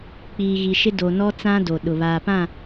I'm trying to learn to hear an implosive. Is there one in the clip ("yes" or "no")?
yes